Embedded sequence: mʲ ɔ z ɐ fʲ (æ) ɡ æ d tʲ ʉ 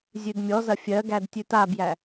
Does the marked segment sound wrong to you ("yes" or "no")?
yes